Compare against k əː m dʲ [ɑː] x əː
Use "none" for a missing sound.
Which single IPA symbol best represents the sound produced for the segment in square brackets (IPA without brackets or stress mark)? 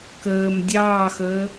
ɑː